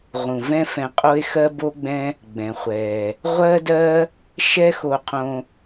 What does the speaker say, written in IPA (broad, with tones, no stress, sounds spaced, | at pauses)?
ʁ ũ˩ v ɛ̃˥ f ɛ̃˧ qʼ o˥ e̯ x ɜ˥ b o˥ ɡ͡b ɛ̃˥ | ɡ͡b ɛ̃˩ χʷ ɛ˩ | ʁʷ ɜ˥ d ɜ˥ | ʃ ɛ˥ x o˧ qʰ õ˧